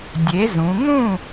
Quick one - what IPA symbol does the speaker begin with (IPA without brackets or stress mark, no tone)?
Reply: dʲ